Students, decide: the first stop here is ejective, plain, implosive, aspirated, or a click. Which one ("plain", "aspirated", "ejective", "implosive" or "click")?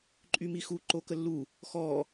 click